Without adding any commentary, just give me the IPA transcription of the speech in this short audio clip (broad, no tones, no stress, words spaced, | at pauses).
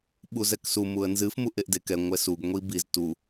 ɓuzɛksu muə̯nzɨf muʔeʔdekɛ ŋʷɛsuɡ ŋʷibiz tu